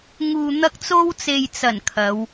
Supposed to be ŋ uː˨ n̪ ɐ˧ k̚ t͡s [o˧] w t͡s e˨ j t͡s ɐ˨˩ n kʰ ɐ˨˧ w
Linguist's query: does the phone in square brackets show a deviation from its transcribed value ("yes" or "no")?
no